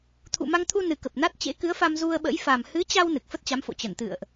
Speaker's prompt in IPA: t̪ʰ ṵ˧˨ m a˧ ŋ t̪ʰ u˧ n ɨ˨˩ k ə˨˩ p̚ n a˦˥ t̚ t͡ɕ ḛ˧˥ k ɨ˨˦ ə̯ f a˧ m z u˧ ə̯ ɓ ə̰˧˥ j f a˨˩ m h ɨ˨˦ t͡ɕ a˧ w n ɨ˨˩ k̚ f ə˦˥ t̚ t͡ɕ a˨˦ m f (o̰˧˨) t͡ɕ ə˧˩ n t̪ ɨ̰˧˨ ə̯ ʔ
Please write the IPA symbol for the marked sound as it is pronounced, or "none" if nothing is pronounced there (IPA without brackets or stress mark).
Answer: o̰˧˨